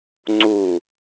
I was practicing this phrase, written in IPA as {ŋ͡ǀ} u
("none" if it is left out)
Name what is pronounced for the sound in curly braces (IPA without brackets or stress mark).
ŋ͡ǀ